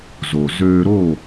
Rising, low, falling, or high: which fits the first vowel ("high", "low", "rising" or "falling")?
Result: low